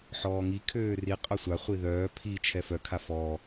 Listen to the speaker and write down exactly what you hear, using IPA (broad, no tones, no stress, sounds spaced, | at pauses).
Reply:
ħ ɔː ŋ i kʰ øː r i qʼ œ sʷ a χʷ i ð œː pʰ i t͡ʃʰ ɛ f œ kʰ a f ɔː